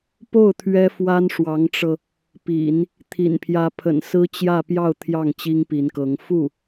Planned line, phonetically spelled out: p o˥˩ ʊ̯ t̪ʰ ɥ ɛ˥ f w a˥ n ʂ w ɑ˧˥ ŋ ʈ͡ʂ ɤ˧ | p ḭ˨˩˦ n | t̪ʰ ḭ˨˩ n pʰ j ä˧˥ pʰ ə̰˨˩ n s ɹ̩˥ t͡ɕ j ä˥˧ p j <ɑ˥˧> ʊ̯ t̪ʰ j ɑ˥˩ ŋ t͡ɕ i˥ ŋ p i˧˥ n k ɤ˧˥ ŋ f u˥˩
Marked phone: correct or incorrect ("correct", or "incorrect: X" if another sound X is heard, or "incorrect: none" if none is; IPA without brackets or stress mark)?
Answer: correct